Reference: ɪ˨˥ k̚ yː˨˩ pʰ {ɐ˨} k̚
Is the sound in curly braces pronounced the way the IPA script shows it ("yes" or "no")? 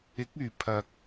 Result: yes